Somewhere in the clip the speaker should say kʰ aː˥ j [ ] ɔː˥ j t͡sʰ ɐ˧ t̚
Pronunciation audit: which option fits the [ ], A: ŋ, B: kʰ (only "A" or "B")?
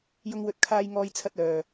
A